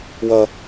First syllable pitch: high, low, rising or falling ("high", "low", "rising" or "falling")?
high